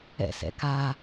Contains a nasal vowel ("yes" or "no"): no